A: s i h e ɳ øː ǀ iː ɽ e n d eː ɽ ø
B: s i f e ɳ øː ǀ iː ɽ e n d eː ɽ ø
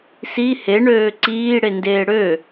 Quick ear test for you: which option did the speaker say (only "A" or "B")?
A